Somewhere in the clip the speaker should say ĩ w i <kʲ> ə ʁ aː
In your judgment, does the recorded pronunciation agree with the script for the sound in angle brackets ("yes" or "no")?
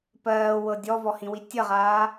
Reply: no